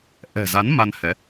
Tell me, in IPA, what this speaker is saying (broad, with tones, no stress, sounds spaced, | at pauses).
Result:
ʔ ɛ̤˨˩ z a˨˦ n m a˧ n h ɛ˨˦